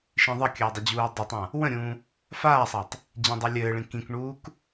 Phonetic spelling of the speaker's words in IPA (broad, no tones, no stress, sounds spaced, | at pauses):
ʃ ĩ ðˤ ə kʲ ɘː dˤ ə d͡ʑ uː dˤ ə tˤ ã | w ə̃ ɾʲ ũː | f aː sˤ a tˤ | d͡ʑ ĩ dˤ ɘ lʲ ɘː ɭ ĩ k ĩ k ɳ uː k